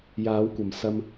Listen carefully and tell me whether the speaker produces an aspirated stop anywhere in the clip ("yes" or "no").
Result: no